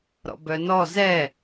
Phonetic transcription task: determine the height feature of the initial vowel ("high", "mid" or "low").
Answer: mid